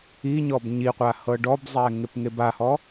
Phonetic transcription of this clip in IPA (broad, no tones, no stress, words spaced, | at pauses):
iɲɔb ɲiqʷa hɤɖɔbzˤɛ ŋepŋebahɔ